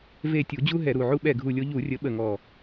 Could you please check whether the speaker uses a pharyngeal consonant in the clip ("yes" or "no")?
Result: yes